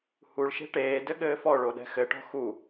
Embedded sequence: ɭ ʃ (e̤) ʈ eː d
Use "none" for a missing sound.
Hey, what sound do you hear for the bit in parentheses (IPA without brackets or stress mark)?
e̤